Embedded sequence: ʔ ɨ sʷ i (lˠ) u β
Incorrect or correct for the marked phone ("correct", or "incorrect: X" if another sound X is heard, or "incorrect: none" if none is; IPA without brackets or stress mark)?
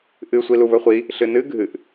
incorrect: l